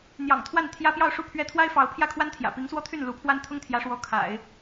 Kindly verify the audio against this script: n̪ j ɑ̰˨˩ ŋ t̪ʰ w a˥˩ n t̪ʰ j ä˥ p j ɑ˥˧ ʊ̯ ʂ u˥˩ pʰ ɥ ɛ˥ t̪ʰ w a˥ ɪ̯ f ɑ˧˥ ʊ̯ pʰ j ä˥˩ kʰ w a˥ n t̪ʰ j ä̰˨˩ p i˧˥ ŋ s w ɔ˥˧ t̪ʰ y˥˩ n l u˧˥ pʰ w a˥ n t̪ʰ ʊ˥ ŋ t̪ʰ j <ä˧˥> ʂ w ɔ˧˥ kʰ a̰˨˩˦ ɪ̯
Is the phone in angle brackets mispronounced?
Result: no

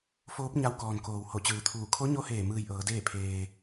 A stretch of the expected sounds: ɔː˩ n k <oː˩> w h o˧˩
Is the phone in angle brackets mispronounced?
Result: no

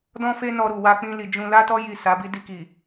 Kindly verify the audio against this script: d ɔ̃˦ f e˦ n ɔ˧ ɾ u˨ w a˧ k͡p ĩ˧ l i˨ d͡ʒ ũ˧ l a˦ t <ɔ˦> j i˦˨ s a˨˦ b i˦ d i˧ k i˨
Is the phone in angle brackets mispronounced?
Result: no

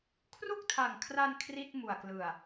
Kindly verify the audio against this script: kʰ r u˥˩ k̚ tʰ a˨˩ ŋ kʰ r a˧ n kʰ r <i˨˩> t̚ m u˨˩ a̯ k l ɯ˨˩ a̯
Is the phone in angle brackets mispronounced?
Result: yes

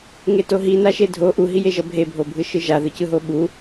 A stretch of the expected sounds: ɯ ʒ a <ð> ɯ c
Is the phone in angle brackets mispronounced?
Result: no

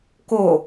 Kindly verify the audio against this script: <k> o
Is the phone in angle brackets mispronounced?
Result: no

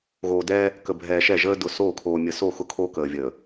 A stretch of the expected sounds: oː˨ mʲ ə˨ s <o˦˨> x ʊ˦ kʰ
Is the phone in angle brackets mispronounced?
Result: no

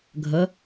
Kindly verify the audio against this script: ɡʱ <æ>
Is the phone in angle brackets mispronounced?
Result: yes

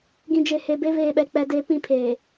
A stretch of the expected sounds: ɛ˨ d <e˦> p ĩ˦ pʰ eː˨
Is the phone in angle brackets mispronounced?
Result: no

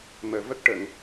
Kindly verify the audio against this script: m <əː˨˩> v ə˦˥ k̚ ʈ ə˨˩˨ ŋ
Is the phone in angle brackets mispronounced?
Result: no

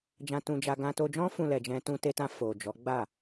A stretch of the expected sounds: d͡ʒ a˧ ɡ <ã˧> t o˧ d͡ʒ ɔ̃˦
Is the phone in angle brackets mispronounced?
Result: no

